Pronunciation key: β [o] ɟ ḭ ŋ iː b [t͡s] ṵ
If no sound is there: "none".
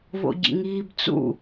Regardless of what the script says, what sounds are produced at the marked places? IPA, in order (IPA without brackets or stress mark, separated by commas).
o̰, t͡s